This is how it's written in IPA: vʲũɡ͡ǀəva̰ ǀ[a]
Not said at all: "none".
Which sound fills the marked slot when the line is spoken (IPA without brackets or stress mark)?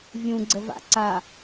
a